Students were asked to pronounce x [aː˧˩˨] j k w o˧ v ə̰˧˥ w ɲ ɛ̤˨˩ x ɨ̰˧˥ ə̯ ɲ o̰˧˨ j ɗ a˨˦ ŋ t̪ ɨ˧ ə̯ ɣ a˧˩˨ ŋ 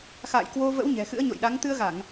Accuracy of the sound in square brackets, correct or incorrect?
incorrect: a̰ː˧˨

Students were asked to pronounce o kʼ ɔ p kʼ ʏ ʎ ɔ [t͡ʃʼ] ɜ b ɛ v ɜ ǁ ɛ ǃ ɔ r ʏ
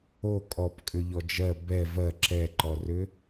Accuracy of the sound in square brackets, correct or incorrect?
incorrect: d͡ʒ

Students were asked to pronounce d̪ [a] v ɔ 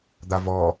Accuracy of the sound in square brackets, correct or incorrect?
correct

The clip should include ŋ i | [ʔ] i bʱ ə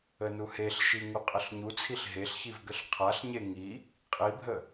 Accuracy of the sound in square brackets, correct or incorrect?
incorrect: qʼ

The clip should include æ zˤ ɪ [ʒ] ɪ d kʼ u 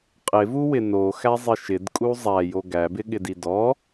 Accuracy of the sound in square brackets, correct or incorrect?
incorrect: ʃ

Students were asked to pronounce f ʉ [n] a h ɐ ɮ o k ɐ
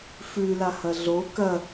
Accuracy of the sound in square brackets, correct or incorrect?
incorrect: l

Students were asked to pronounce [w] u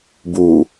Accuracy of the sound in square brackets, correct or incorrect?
incorrect: b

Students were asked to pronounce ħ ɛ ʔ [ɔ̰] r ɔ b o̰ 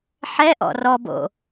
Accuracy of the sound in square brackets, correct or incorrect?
correct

